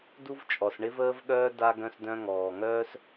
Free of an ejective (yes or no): no